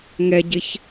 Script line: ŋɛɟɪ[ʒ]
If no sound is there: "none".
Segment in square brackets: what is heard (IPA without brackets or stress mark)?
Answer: ç